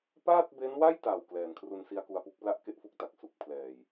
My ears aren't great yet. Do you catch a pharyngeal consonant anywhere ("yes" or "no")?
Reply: no